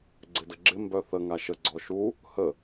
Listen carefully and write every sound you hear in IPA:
ɡ͡ǀ ɪ d ə ɡ͡ǁ ɪ m b œ θ ə ŋ a ʃ ə ɡ͡ǀ ɔ ʃ u | h ə

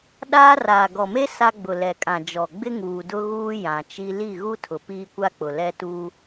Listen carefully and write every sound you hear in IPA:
ɗ aː˦ r aː˨ ɡ ɔ˨ m e˦ s a˦ ɡ͡b ʊ˨ l ɛ˨ kʼ ã˨ d͡ʒ ɔ˨ ɡ͡b ɪ˦ ŋ uː˨ d ʊ˦ ɣ uː˦ j ã˨ t͡ʃ i˦ l i˦˨ ɣ u˦ tʰ ʊ˨ p iː˦ kʷ a˦ k͡p ʊ˨ l ɛ˦ t u˦

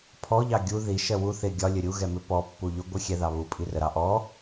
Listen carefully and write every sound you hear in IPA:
pʰ ɔ ʎ ɑ ɡʲ u ð i ʃ ɜ w u θ ɪ ɡʲ ɒ lʲ ə ɾʲ u ɣ ɛ m ɪ p ɔ pː u ʎ ʊ ɡʷ ɜ xʲ ɛ ð ɑ β u pʼ i r ə ɾ ɑ ʔ ɔ

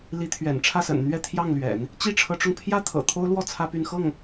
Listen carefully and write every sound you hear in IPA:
l i˧˥ t̪ʰ ɥ ɛ̰˨˩ n ʈ͡ʂʰ ä˥˩ s ə̰˨˩ n n̪ ɥ ɛ˥˧ t̪ʰ j ɑ˥˩ ŋ l ɥ ɛ̰˨˩˦ n | t͡ɕ i˥ ʈ͡ʂʰ ɤ˧˥ ʈ͡ʂ ʊ˧ ŋ pʰ j ä˥ t̪ʰ ɤ̰˨˩ t̪ʰ o˥ ʊ̯ l w ɔ˥˩ t͡sʰ ä˥ p y˥˧ n x ɤ˥˩ ŋ

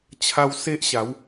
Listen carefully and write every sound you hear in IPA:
t͡ɕʰ a˧ w s e˦ ʔ ɕ a˨˦ w

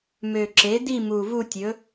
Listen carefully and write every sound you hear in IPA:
m ø˨˩ ǁ e˩˥ d i˥˧ m u˨˩ v u˥˧ tʲ ɵ˩˥

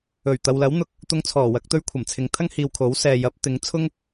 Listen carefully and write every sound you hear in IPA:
ɵ˨˩ ɥ t̪ ɐ˨ w l ɐ˨˥ w n̪ ʊ˨ k̚ | t̪ ʊ˧ ŋ t͡sʰ ɔː˨˩ w ɐ˧ k̚ t̪ ɵ˥ ɥ kʷʰ ɐ˨˩ m t͡sʰ ɪ˨˧ ŋ t̪ʰ ɐ˥ ŋ h iː˨ w kʰ o˨˥ w s ɛː˨ j ɐ˨˥ p̚ t̪ ɪ˨˥ ŋ t͡sʰ ʊ˥ ŋ

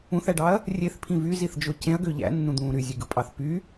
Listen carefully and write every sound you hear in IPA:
ũ θ æ ɖ ɑ ɐ̯ | rʲ e θ pʰ ĩ v y z i θ d͡ʒ o c ẽ ɐ̯ ɡ ø ʎ æ̰ nː ũ d̪ ũː ɾ y zʲ e ɡ ɯ pʼ ɑ θ p y

